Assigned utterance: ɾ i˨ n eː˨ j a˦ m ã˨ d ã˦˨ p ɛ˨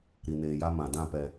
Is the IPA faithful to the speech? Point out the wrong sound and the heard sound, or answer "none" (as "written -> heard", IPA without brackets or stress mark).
none